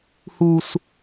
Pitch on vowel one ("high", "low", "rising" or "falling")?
high